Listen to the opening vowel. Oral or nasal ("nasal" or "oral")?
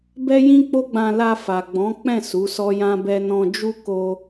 oral